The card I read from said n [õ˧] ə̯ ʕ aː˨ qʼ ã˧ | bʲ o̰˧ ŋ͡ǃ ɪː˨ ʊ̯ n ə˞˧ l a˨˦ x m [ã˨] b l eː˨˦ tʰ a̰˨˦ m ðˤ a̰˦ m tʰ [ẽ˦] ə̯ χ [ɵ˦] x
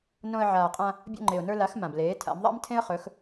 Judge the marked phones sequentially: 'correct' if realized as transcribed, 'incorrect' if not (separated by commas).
correct, correct, correct, incorrect